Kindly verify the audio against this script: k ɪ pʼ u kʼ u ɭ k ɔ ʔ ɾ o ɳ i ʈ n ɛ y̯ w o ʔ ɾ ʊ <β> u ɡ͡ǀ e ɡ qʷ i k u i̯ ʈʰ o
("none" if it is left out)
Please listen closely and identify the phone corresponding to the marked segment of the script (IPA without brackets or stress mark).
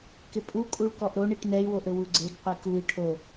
w